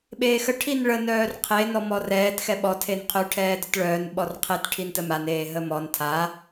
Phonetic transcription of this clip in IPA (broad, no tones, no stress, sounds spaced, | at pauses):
ɓ eː x ə ʈʰ i n ɭ ə n œː r qʰ e n ɔ m ɔ r ɛː t x ɛ ɓ ɔ tʰ e n qʰ ø ʈʰ ɛː d ə t ɭ œː n ɓ ɔ r qʰ e t ʈʰ i n t ə m a n eː ɦ ə m ɔ n tʰ a